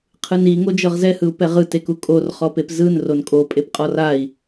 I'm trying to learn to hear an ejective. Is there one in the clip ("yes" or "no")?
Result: yes